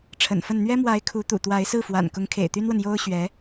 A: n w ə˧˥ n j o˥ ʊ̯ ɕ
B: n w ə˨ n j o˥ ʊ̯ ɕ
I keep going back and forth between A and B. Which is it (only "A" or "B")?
B